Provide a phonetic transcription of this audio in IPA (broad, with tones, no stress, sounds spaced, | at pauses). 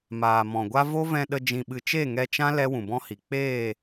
m aː˨ m ɔ̃˨ ɡʷ a˦ v o˦ v ɛ̃˧ ɗ ə˧ d͡ʒ ĩ˧ ɓ ɨ˧ t͡ʃ e˦˨ ŋ ɛ˧ t͡ʃ ã˦ l ɛ˦ w ũ˨ b ɔ̃˦ h i˨ k͡p eː˦˨